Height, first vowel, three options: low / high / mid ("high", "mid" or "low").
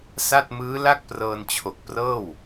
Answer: low